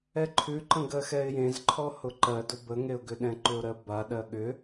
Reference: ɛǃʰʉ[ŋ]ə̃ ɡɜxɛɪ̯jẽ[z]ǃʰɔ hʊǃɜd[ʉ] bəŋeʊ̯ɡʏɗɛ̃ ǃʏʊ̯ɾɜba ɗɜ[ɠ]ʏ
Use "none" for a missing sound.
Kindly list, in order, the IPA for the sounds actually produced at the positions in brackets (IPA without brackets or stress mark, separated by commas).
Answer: ǃ, z, ʊ, ɠ